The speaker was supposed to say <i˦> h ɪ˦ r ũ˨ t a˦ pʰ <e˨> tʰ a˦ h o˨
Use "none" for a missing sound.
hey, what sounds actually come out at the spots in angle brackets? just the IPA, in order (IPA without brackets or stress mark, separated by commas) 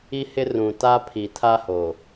i˦, i˨